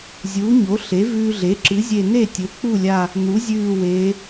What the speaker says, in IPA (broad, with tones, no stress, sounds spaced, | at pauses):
zʲ uː˩˥ ɲ o˩˥ ɬ e˩˥ v ʉː˧ ɮ e˩˥ ǁ ɨ˩˥ zʲ e˧˩ n e˥˩ tʲ ɵ˩˥ k͡p u˥˩ lʲ a˧˩ | n̪ u˩˥ zʲ ʉː˧˩ w eː˩˧